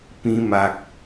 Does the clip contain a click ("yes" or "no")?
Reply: no